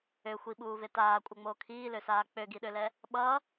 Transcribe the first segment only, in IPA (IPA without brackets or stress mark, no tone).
ø